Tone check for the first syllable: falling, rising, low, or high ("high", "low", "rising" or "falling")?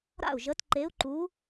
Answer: falling